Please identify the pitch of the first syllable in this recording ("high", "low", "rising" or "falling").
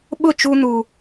falling